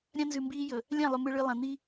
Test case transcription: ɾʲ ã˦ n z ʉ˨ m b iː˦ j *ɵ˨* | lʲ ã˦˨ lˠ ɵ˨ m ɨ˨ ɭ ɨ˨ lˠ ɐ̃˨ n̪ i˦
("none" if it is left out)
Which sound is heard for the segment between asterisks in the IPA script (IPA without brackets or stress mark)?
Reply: ɵ˨